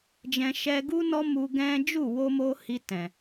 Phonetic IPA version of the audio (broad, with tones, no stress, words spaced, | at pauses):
d͡ʒɛ̃˧ʃɛ˦ ɡu˦nɔ˦ mu˧ɡɛ̃˦ d͡ʒu˦˨wo˧mo˧ hi˧ tɛ̃˨